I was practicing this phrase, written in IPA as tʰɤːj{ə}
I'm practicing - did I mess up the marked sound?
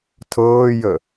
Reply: no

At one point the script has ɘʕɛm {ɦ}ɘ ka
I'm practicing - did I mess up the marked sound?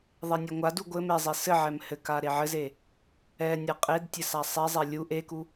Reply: yes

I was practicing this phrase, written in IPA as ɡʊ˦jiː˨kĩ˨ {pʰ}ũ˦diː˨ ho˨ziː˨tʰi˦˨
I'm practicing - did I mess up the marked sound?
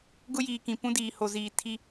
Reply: yes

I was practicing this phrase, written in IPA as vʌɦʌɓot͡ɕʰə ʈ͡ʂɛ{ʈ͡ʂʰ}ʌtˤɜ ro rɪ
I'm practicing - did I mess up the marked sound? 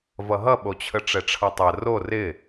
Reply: no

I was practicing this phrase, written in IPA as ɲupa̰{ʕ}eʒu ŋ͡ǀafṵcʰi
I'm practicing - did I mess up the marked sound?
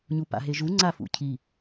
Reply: yes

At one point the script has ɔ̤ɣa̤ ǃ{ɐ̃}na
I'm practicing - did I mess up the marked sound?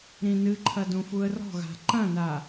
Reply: no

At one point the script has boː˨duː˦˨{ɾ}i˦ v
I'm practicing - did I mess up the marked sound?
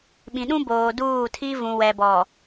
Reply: yes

